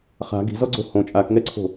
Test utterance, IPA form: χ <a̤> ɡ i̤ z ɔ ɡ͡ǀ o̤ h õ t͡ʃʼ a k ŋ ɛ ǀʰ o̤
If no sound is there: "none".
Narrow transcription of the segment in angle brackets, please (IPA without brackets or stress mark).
a̤